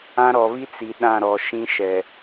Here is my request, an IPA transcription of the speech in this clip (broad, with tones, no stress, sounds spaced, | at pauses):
ã˦ ɾ ɔ˨ β i˦ t͡s i˨ ɗ ã˦˨ ɾ ɔ˨ ʃ ĩ˦ ʃ ɛ˨